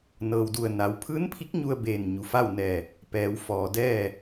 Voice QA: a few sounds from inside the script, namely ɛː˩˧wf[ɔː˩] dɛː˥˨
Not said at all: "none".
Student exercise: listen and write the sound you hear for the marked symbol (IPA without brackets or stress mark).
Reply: ɔː˩